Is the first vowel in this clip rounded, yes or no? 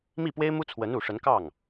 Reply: no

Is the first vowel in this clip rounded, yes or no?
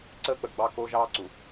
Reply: no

